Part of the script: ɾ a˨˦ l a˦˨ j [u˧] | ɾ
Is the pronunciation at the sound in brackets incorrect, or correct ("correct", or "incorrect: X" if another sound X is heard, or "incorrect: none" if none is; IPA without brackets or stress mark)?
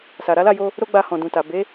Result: incorrect: o˧